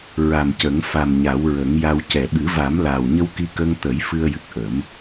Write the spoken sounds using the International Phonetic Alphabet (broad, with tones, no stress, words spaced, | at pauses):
ɹa˨˩mcə˨˩˦ŋ fa˨˩mɲa˨˩˦wɹə˨˩˦ŋja˧w cɛ˨˩˨ɓɨ˨˩˦va˨˩˦m laː˨˩wɲə˧wki˧kəː˧ŋ t̪ə˨˩˦j fɨ˧ə̯jɨ˨˩k̚ʔə˨˩˦m